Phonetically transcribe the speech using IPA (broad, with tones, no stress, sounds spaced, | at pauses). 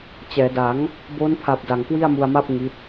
t͡ɕ ɛː˩˦ d a˩˦ ŋ | b o˦˥ n pʰ a˨˩ p̚ d a˨˩ ŋ k w i˥˩ a̯ m u˧ a̯ m a˥˩ p̚ ŋ i˦˥ t̚